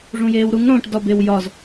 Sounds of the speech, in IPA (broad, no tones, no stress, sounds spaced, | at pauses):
ʐ ũ j eː w ɾ u ŋ ɽ õ ʈ d ɒ b e w j ɒ z